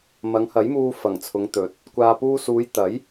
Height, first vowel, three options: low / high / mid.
low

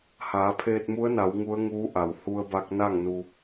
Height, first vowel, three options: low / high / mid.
low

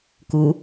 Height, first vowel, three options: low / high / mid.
high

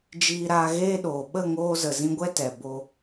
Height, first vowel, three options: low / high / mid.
high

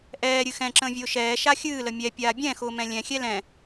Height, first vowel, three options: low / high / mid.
mid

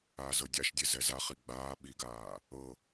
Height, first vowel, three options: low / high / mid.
low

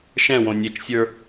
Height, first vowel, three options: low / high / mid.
mid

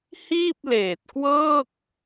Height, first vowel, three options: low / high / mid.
high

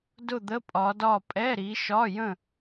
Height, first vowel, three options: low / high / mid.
high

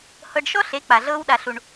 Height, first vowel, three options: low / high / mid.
mid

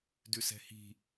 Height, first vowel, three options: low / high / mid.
high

